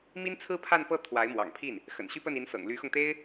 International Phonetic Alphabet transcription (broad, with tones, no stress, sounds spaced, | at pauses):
m i˥ n t͡sʰ ɹ̩˥ pʰ a˥˧ n p ɤ˥˩ t̪ʰ w a˧˥ ɪ̯ m w ɑ̰˨˩ ŋ pʰ i˥˩ n | x ə̰˨˩ n ɕ y˥ p ə˥˩ n i˧˥ n s ɤ̰˨˩ ŋ l y˧˥ x ʊ˧ ŋ t̪ e˥ ɪ̯